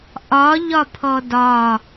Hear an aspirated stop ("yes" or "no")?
yes